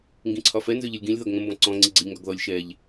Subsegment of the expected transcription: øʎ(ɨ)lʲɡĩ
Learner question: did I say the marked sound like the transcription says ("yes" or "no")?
yes